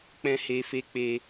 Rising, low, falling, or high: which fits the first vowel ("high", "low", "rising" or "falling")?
high